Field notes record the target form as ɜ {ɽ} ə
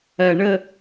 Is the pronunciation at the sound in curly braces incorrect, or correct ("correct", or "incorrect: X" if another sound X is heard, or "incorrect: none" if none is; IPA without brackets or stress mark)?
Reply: incorrect: ɳ